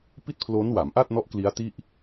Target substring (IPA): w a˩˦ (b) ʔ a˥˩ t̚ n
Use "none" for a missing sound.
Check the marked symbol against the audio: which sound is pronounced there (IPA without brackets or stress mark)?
m